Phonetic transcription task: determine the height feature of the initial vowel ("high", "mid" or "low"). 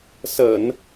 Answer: mid